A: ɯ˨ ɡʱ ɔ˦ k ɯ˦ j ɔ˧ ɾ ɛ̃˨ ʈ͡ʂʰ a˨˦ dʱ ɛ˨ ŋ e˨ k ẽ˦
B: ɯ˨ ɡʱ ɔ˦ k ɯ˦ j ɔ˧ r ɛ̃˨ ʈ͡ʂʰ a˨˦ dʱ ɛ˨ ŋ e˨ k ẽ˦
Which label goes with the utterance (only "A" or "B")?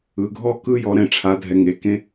A